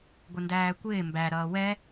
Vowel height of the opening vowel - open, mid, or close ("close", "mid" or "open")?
close